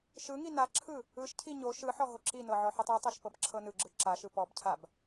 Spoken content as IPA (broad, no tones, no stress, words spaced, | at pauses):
ʃɯ ŋinaǁʰɯ | ɯʃcʰi ɲo ʃɯħɔ ɦoǁinɤ ʕɔħɯtˤɯtˤɤʃ pɤbǁʰɤnɯɡ͡ǁɯ ǁaʃɯ pɔbcʰab